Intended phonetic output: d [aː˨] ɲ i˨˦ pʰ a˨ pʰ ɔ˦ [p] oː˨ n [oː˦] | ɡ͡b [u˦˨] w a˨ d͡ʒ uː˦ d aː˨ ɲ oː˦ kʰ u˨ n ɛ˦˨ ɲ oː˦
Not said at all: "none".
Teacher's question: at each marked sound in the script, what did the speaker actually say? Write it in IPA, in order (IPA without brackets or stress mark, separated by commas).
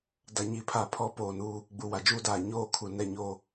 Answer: a˨, p, uː˦, u˨